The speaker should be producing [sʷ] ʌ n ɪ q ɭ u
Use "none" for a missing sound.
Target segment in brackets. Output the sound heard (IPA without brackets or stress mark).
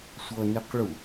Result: sʷ